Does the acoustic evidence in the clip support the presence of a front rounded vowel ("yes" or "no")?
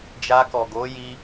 no